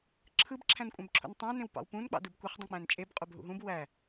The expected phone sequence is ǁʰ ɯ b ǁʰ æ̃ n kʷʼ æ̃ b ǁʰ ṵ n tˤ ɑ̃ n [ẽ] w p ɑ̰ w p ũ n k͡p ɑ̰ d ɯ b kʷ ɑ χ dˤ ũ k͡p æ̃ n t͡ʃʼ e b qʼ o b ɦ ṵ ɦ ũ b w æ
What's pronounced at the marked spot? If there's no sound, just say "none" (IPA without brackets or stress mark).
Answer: ẽ